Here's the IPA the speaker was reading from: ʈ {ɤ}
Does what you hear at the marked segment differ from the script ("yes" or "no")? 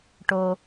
yes